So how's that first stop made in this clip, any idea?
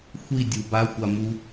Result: plain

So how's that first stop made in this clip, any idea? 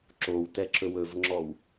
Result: click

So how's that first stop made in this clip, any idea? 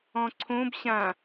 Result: click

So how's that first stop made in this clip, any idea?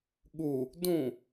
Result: implosive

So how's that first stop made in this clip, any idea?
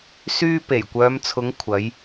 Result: plain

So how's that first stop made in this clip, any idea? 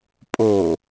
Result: ejective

